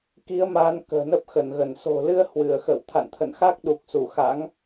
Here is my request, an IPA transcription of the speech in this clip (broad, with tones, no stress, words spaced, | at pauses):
ki˨˦ə̯ma˨˦n kə̤ː˨˩nə˦˥p̚xə˧˩nɣə˧˩n so̤˨˩lɨ˧ə̯ hwɨ˧˩ə̯xə̰ː˧˨w t̪ʰa̰˧˨nt̪ʰə̰˧˨nxa˦˥k̚ ɗu˨˩k̚su˧˩xa̰˧˥ŋ